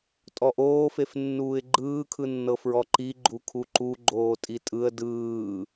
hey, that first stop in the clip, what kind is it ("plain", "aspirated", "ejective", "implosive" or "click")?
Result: ejective